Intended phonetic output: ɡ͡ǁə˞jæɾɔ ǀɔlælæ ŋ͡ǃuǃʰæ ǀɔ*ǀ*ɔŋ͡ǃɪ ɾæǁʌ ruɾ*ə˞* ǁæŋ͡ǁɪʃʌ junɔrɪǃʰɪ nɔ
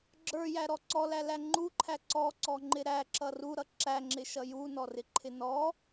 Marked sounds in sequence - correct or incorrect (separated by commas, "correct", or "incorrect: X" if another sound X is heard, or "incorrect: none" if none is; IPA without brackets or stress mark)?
correct, incorrect: ʌ